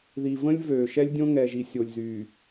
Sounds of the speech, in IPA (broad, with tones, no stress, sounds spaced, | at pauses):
ð i˨ v ə̃˦ lʲ v øː˨ ʃ ɛ˦ lʲ dʲ õ˦ ŋ ɛ˨ ʒ i˨ sʲ o˨ lʲ z yː˨